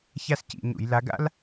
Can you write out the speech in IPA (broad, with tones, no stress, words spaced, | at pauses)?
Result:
ça˥scḭ˧˩˧ɲṵ˧˩˧j la˨˦ɡa̰˥l